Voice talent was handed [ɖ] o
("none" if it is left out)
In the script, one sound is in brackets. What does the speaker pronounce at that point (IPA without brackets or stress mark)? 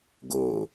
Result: ɡ